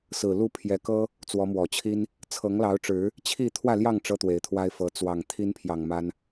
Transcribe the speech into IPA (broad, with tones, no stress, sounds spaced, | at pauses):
s ɹ̩˨˩ l u˥˨ pʰ j ɛ˨˦ k ɤ˦ | t͡s w ɔ˨˦ m w ɔ˨˩ t͡ɕʰ i˦ n | t͡sʰ ɤ˨˦ ŋ l ɑ˨˦ ʊ̯ ʈ͡ʂ ɻ̩˨˦ | t͡ɕʰ i˥˨ t̪ʰ w ä˥˨ l j ɑ˥˨ ŋ ʈ͡ʂ ɤ˦ t̪ w e˨˦ ɪ̯ t̪ʰ w a˦ ɪ̯ f ɤ˨˦ t͡s w ɑ˨˩ ŋ t̪ʰ i˦ n pʰ j ɑ˨˩ ŋ m a˦ n